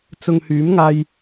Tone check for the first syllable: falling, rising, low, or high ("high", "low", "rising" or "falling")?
low